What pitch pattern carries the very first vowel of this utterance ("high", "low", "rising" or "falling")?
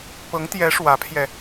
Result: rising